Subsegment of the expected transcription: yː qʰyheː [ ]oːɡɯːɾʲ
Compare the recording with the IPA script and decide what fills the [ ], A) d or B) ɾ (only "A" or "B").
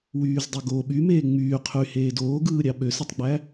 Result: A